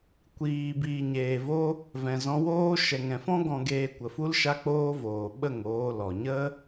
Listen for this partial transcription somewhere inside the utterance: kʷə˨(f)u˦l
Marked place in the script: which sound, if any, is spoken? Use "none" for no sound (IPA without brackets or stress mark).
f